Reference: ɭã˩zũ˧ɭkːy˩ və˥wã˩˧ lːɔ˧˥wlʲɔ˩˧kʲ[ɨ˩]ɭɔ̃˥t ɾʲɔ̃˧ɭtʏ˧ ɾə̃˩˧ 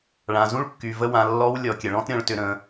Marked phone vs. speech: incorrect: ə˩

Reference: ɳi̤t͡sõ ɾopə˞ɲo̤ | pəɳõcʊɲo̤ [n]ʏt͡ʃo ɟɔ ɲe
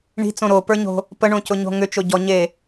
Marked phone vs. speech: incorrect: ŋ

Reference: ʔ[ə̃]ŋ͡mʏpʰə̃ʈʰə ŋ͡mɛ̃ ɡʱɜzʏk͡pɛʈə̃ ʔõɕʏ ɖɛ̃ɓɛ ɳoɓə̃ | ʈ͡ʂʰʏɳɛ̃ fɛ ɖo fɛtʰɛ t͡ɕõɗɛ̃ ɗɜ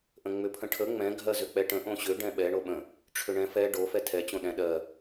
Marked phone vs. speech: correct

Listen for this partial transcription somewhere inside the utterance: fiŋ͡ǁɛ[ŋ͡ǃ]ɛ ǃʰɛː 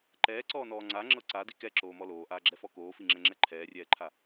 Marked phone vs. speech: incorrect: ŋ͡ǁ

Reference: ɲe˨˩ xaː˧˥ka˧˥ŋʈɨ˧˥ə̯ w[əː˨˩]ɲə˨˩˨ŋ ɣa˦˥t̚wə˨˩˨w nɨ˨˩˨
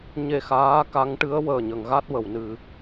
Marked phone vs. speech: correct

